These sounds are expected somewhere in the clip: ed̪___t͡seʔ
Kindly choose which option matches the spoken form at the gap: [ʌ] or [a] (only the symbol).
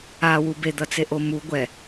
ʌ